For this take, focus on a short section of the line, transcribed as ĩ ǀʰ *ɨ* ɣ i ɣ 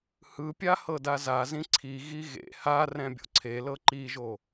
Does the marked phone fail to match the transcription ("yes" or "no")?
yes